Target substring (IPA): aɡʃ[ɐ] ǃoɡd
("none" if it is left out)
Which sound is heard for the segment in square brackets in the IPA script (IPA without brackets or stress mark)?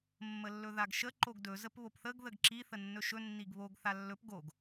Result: ə